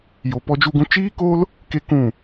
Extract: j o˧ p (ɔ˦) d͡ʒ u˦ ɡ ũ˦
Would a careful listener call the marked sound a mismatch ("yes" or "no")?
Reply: no